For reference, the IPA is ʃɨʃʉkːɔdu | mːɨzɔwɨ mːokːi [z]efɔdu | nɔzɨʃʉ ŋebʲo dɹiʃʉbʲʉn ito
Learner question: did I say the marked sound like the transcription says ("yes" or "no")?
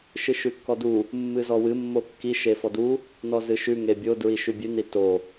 no